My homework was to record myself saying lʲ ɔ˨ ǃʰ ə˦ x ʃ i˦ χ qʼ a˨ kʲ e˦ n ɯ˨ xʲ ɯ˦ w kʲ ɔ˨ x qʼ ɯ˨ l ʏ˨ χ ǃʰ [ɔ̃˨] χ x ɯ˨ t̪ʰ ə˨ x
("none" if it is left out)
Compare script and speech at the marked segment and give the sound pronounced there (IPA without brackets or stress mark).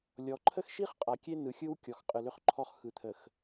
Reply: ɔ˨